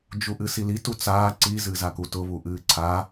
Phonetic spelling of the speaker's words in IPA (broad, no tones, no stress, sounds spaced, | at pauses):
d͡ʒ u ʔ ɨ s i l i t u t͡s aː ǀ i z ɨ z a k u t ʊ β u ʔ ɨː ǀʰ a